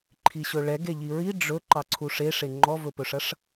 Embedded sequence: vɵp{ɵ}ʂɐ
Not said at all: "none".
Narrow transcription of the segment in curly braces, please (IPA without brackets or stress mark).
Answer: ɵ